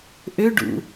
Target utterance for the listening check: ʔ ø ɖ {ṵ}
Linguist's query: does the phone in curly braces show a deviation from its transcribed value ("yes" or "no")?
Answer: no